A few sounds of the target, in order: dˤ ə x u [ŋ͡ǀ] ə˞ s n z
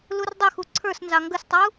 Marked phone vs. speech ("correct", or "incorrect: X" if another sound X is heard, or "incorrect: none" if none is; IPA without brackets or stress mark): incorrect: ǀʰ